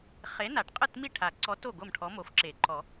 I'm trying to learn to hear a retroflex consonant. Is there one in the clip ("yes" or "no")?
yes